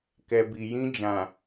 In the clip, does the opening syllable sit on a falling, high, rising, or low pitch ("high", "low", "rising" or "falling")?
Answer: low